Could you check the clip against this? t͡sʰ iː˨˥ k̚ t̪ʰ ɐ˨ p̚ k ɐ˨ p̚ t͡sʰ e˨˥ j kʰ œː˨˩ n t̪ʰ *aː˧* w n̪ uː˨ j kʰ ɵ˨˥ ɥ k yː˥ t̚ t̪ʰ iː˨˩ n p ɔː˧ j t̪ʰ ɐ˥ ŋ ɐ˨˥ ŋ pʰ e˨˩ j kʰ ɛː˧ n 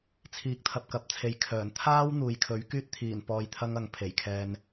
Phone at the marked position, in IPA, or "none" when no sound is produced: aː˧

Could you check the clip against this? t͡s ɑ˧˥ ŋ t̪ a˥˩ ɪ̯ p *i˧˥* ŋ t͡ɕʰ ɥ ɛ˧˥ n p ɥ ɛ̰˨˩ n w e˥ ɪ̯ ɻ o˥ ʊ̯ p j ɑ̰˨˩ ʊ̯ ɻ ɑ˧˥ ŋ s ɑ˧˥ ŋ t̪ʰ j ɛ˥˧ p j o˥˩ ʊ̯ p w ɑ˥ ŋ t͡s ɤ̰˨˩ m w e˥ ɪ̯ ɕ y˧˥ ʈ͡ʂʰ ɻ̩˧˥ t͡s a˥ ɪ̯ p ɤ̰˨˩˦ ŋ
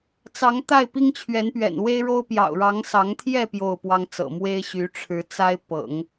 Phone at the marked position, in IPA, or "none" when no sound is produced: i˥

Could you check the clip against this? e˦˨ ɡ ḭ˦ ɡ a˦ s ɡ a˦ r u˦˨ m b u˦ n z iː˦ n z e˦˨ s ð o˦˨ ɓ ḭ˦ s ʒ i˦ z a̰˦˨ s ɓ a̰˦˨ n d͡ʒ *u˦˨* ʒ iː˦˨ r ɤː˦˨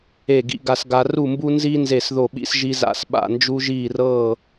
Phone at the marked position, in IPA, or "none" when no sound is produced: u˦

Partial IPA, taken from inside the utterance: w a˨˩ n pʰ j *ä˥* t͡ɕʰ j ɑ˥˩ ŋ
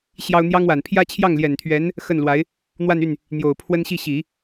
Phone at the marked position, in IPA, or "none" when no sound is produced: ä˥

